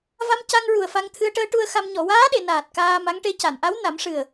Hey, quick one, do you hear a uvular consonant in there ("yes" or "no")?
no